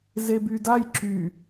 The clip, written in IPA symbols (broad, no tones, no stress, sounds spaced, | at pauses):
z e b y d a j ǁ y